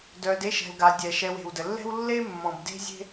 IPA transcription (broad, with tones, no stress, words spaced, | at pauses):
dœ˨d e˦ʃɛ̤˨lɡa˨ dʲɛ˩ʃɛ˨we̤˩w də˩lːɛ̤˦w lːe˥mːɔ̃˩b de̤˦zʲe̤˦